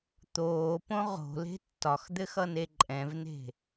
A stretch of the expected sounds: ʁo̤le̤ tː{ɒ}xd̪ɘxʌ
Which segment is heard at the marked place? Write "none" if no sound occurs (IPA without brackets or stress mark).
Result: ɒ